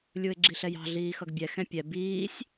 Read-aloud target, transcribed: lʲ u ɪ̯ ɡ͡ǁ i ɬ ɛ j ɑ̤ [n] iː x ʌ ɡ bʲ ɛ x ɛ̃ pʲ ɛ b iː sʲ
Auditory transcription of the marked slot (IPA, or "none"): ɮ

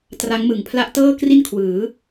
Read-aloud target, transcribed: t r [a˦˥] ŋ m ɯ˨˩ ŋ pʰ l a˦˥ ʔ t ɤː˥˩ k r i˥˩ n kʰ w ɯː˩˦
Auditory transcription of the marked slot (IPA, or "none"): a˦˥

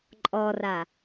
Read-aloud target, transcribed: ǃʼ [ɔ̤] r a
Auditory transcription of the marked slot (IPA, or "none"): ɔ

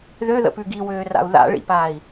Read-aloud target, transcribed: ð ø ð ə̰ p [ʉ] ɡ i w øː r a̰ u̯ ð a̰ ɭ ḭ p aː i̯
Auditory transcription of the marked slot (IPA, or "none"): ʉ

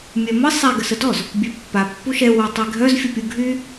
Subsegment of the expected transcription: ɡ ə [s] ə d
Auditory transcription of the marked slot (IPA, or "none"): s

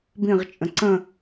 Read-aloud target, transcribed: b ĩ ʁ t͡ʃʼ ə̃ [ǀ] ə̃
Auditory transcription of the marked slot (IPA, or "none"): ǀ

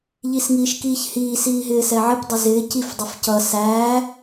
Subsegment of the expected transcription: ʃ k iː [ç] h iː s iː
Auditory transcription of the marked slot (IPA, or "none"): ç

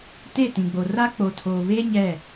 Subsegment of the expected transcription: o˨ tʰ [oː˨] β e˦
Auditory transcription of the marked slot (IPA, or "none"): oː˨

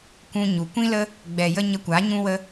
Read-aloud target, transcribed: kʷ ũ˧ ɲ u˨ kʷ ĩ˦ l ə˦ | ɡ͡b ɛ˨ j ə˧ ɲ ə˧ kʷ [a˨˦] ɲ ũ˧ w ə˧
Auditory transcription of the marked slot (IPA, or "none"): a˨˦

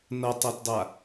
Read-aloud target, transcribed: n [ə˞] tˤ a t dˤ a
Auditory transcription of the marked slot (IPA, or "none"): ʌ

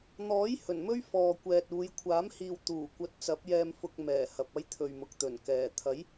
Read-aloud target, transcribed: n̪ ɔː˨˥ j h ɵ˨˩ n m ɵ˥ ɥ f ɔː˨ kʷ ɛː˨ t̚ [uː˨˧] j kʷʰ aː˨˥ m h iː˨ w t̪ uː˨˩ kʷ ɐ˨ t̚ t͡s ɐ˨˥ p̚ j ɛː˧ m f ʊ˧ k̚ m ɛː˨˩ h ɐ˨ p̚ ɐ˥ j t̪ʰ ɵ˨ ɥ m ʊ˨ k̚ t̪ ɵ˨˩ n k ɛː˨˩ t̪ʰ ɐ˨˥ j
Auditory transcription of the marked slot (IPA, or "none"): uː˨˧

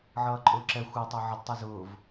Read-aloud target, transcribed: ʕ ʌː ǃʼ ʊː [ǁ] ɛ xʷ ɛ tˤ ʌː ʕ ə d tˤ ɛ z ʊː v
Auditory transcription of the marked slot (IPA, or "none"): ǁ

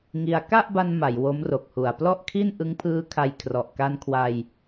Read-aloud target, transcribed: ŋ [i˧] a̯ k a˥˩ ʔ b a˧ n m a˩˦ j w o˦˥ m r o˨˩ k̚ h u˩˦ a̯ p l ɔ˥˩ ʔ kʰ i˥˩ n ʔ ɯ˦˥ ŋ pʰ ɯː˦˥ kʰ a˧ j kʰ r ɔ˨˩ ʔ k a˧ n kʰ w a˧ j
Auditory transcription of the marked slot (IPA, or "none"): i˧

